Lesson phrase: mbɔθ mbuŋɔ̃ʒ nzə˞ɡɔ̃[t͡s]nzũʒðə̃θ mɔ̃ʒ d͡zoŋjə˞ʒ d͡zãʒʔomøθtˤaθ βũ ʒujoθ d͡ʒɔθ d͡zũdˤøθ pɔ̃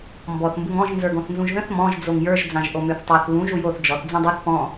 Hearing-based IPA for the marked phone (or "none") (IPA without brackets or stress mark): θ